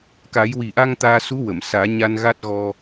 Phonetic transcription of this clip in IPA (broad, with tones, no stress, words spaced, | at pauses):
ka˨˩˦jwi˨˩ʔa˧ŋ t̪aː˧su˧˥ wə˨˩˨m saː˨˩˦ɲa˧n ɣa˦˥t̚ɣɔ˧